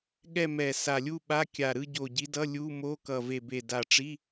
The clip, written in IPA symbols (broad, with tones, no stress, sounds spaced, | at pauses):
ɠ ɛ˥˧ m ɛ˨˩ s a˨˩ lʲ u˥˧ ɓ a˧˥˧ kʲ a˨˩ ɾ ɯ˥˧ ɟ o˨˩ ɟ i˨˦ d ʌ˧˥˧ lʲ u˧˥˧ m o˧˥˧ k ʌ˨˩ v e˨˩ b e˨˩ d a˨˩ ʈ͡ʂ i˧˥˧